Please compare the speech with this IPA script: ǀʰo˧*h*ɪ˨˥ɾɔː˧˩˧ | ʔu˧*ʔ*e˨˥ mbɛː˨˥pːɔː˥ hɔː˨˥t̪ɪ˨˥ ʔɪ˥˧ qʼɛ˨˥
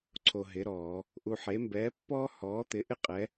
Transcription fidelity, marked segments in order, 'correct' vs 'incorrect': incorrect, incorrect

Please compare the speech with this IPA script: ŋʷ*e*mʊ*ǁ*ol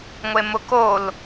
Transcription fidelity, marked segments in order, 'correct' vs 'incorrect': correct, incorrect

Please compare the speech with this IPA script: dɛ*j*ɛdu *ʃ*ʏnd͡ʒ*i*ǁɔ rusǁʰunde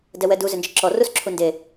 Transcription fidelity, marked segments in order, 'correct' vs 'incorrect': incorrect, incorrect, incorrect

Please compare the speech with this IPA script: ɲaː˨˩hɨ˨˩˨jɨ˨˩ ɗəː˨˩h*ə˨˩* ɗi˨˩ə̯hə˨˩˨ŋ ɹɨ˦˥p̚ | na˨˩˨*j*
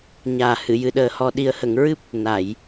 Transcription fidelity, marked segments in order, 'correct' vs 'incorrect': incorrect, correct

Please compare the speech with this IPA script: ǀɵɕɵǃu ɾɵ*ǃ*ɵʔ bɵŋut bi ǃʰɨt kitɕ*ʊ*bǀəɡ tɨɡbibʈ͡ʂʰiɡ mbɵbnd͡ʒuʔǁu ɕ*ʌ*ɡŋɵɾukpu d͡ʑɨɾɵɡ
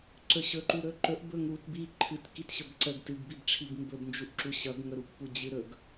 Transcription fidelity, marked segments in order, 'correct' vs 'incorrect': correct, incorrect, correct

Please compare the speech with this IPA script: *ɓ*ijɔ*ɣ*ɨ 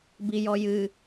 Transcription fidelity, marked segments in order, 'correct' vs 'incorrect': incorrect, incorrect

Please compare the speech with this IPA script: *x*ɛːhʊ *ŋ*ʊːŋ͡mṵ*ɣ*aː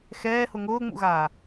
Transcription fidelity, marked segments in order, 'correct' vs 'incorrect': correct, correct, correct

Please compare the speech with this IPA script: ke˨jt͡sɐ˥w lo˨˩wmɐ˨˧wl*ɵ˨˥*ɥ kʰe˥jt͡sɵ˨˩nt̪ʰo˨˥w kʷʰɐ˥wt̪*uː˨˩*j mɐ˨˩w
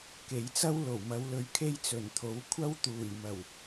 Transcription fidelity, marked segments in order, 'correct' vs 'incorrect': correct, correct

